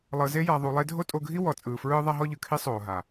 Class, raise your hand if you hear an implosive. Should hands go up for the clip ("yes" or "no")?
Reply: no